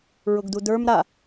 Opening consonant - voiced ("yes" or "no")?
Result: yes